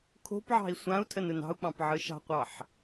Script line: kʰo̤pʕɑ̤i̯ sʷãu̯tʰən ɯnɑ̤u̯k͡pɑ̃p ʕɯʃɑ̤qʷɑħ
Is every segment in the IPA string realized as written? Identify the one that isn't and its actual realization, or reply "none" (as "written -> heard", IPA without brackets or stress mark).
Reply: none